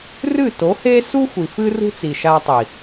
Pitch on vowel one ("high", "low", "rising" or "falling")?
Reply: falling